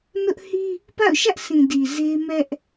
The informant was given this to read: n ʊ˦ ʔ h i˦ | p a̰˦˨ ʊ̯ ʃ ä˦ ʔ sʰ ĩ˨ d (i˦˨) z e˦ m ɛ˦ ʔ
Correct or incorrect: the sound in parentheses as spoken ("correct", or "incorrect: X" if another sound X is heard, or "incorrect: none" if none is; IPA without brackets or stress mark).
incorrect: i˨